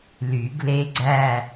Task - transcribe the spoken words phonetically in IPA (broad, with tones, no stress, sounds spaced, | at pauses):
l y˨˩˦ ɡ l e˦˥ ɡ͡ǀ æ˥˧